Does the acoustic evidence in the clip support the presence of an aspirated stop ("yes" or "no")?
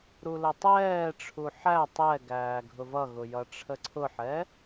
yes